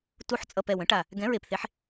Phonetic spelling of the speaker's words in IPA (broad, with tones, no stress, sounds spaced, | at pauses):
t u˩˥ ħ t͡sʼ ʌ˨˩ p ɛ˨˩ w ə̃˩˥ ʈ a˨˩ | ɡ ɛ̃˩˥ ɹ e˨˩ p θ e˩˥ ħ